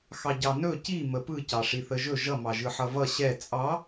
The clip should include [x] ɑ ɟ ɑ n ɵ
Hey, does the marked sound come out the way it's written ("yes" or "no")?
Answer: yes